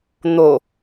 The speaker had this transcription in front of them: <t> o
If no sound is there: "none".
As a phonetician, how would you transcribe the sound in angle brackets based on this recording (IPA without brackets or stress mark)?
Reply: n̪